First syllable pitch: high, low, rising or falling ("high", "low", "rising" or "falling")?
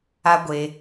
high